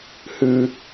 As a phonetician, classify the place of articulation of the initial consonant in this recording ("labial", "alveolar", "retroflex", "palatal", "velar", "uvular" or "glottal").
glottal